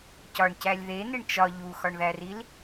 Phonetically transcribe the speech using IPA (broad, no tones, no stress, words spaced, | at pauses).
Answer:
cɒɳcælʲ ðeneɳ t͡ʃɒ ʎuxɒɳðæril